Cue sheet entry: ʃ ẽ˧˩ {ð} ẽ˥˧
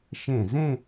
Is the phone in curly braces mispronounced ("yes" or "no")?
yes